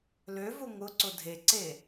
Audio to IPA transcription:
l ø v ʊ ŋ ʊ ǀ ʊ dʱ e ǀ e

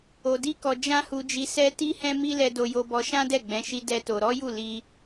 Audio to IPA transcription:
o˧ d i˦ k ɔ˧ d͡ʒ ã˦ h u˧ d͡ʒ i˧ s ɛ˦ t i˦ h ɛ̃˦ m i˦ l ɛ˧ d o˧ j o˧ b ɔ˧ ʃ ã˦ d ɛ˦˨ ɡ͡b ɛ̃˨˦ ʃ i˧ d ɛ˦ t o˧ ɾ ɔ˦ j u˦˨ l i˧

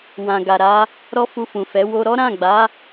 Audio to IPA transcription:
w ã˨ ɡ a˨ ɾ a˨˦ | ɾ ɔ˦ f u˧ f ũ˨ f ɛ˨˦ w o˧ ɾ ɔ˦ ɾ ã˦˨ ɡ͡b a˨˦

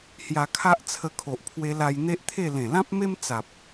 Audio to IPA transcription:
h j a˧ kʰ a˦ ʔ t͡sʰ ə˧ kʰ o˨ ʔ pʰ w e˧ l a˧ j n̪ e˦ ʔ t̪ʰ e˥˧ l ẽ˨˩ l ã˦ p̚ m e˦ m t͡s a˨ p̚

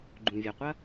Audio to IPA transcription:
ɡ͡ǃ ũ˩ vʲ ɐ˩ qʷ ɐ˥

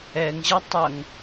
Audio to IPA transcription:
ɛ ŋ ʑ ɐ tˤ ɐ ŋ

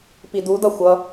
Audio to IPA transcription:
p i d u d ʌ xʷ ʌ

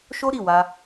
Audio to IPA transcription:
ʃ o˦ ɾ i˦˨ w a˧

